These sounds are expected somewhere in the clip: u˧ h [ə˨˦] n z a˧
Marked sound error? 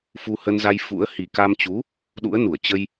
yes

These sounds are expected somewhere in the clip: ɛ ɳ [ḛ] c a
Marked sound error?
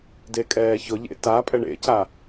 no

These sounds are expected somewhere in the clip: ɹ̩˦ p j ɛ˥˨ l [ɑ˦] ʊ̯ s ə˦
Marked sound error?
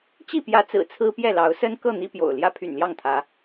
yes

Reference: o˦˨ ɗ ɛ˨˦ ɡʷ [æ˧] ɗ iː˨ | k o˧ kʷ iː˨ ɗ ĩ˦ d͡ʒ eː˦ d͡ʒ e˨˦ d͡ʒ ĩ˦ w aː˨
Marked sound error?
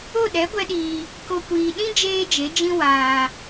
yes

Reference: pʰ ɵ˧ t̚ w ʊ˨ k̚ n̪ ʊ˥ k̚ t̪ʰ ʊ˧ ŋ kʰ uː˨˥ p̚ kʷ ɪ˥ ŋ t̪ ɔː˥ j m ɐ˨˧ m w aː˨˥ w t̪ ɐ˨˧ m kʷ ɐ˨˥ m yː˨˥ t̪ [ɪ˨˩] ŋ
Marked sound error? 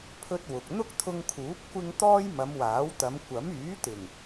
no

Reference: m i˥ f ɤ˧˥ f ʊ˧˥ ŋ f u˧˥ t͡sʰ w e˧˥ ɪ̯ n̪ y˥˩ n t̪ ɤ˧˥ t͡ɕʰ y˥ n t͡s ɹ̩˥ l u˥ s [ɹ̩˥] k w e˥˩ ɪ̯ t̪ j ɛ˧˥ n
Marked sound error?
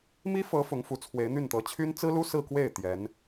yes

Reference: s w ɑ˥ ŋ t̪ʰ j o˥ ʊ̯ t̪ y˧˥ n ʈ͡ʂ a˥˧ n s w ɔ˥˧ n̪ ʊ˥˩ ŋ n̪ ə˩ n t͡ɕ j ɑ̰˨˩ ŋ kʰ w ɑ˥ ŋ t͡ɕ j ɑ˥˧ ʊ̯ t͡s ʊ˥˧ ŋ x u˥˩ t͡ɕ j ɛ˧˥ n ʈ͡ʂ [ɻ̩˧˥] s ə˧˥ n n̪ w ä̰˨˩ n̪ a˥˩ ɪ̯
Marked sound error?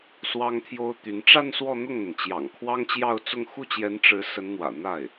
no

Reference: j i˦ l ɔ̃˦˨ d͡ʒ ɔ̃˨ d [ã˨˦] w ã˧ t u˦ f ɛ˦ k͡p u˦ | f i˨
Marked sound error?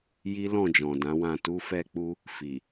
no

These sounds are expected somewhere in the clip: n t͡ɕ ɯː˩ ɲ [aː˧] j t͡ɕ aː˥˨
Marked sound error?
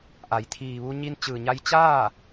yes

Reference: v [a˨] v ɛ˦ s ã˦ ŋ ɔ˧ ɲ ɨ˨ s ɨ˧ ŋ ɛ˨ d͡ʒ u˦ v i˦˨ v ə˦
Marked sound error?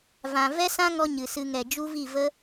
yes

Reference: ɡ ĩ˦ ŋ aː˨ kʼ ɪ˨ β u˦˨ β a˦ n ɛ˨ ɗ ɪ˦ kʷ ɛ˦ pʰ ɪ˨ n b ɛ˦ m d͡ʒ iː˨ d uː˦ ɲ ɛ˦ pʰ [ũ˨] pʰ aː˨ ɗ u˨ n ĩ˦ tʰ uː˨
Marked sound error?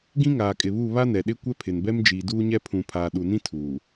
no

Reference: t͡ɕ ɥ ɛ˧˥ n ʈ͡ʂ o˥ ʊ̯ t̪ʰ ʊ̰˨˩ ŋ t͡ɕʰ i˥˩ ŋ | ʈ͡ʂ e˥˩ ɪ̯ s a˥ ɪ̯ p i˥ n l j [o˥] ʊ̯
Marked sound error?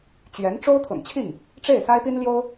no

